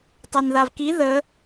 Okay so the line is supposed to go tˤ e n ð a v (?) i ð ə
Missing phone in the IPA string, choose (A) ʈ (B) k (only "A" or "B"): B